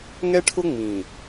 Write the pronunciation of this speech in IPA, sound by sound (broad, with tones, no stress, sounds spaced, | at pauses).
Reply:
ŋ ɛ˦ ʈʰ ʊ˦ ŋ͡m ĩ˨